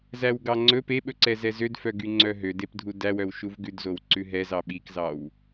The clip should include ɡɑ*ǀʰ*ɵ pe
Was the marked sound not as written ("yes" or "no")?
yes